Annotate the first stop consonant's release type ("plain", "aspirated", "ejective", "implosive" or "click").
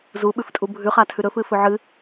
implosive